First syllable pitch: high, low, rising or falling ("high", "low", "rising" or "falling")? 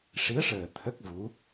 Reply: rising